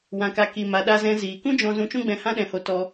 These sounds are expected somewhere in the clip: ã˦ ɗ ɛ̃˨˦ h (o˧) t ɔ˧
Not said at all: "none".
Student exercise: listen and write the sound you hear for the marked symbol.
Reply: o˧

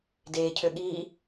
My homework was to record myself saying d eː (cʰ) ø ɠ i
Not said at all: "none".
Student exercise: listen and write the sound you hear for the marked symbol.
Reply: cʰ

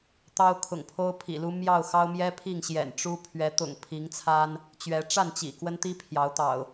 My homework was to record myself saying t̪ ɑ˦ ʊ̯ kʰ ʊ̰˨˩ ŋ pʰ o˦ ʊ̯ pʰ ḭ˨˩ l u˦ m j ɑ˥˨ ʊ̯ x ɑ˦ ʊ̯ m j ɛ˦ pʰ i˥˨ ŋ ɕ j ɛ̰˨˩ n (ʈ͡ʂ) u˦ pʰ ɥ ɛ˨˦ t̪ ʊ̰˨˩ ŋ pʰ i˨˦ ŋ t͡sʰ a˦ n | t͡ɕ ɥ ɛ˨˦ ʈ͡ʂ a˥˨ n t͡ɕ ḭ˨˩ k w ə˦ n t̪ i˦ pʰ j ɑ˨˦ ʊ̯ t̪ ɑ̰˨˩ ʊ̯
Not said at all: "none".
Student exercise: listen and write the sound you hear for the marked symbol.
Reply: ʈ͡ʂ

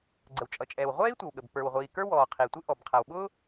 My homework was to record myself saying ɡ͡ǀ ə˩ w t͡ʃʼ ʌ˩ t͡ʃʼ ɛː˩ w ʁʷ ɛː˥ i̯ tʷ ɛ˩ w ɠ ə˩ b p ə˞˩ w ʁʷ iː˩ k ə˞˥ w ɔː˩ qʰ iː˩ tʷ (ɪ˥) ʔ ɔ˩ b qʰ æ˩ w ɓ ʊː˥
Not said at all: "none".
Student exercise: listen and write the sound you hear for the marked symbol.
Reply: ɪ˥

